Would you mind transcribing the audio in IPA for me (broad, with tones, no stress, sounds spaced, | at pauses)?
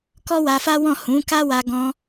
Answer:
k ɔ˦ w a˧ f a˦ w ɔ̃˦˨ h ũ˨˦ k a˦ w a˧ ɡ ɔ̃˧